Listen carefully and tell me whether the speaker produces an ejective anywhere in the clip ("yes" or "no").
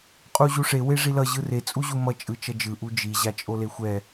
yes